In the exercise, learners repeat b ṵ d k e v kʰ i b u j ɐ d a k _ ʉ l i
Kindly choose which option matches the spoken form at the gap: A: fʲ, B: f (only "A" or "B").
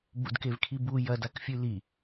A